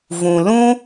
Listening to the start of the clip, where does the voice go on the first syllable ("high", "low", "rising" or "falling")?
low